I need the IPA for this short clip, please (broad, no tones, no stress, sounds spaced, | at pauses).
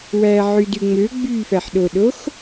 w æ ʕ y d y ŋ͡m ø ɡ͡b y f æ ħ ɗ o ɗ o x